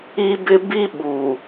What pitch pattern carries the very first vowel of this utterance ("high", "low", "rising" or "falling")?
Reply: high